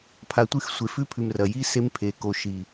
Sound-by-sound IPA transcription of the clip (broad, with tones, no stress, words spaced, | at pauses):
pʰa˨tʷɨ˦˨x sʷe˨fʉ˦pʰʉ˨m rɐ˨ji˦ se˦mpʰe˨ko˨ ʃi˨